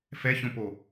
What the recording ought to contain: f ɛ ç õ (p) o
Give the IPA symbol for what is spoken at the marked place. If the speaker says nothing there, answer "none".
p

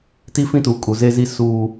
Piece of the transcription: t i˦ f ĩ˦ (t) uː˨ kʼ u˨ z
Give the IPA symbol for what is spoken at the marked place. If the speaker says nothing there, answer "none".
t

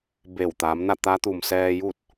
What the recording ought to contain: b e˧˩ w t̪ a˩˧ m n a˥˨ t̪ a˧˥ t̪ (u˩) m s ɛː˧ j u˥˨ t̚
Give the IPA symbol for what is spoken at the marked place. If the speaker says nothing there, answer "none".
u˩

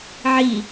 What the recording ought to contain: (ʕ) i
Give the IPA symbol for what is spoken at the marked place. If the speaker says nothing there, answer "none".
ʕ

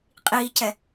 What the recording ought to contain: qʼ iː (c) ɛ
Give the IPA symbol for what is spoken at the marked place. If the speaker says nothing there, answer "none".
c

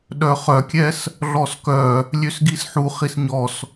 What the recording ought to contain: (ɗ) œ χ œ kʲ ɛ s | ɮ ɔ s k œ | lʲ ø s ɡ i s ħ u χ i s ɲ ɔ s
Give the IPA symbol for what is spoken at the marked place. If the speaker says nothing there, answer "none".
ɗ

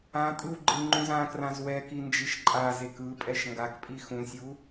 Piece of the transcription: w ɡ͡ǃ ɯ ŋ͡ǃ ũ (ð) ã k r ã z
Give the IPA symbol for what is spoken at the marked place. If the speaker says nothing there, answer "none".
z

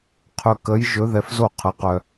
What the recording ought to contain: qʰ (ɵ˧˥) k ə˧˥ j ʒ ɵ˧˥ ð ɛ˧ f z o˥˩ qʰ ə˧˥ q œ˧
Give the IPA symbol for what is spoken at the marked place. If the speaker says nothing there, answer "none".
ɵ˧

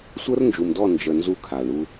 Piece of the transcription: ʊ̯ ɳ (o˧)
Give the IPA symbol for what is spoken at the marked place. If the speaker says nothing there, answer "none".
u˧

